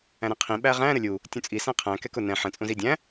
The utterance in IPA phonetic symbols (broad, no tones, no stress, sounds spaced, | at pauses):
æ̃ ɾ ɛ̃ qʰ ĩ ɓ æ ʁ æ̃ ɾ ə lʲ u | tʲ ũ t͡sʼ i s æ̃ qʰ æ̃ k ɛ k ʊ n ɛ̃ ħ ə̃ t͡sʼ ũ z i dʲ æ̃